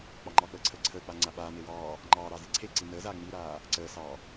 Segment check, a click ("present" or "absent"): present